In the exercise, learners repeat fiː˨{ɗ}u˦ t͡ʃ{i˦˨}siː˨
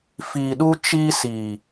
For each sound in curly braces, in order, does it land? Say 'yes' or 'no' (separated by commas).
yes, no